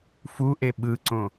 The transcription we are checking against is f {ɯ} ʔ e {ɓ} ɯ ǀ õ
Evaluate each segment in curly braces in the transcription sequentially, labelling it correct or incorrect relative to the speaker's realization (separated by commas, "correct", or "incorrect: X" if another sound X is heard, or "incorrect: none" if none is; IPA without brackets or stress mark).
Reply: incorrect: u, correct